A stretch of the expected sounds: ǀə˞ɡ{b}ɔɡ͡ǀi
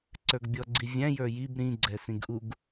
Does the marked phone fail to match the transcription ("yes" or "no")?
yes